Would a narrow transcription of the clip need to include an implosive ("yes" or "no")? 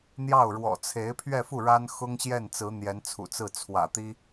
no